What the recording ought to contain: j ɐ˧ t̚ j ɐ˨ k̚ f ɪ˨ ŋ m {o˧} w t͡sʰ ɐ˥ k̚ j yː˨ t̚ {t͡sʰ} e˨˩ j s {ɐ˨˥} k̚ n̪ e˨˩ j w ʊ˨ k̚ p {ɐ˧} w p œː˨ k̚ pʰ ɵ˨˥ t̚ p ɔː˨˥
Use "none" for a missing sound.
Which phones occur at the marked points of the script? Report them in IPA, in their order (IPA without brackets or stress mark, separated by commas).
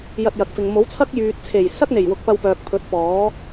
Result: o˨˥, t͡sʰ, ɐ˥, ɐ˧